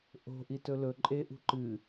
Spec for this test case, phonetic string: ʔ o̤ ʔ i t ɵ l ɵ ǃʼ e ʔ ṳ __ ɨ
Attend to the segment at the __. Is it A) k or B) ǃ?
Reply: B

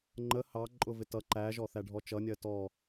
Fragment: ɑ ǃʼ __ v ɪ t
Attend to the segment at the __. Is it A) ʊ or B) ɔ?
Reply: A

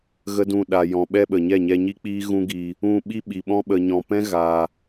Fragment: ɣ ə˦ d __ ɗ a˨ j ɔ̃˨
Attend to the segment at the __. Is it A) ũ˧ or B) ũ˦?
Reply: A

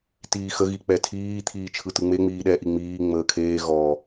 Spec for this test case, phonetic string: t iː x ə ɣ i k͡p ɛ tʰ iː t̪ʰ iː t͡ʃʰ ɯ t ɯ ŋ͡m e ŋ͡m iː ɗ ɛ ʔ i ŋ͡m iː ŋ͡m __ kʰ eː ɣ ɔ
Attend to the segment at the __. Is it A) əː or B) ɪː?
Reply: A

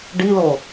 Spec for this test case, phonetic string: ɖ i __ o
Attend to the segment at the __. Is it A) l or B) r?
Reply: A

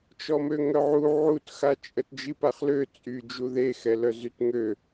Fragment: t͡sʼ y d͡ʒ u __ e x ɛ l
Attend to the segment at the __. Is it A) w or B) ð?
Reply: B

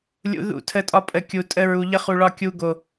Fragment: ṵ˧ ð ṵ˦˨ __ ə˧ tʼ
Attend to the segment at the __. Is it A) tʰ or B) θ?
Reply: A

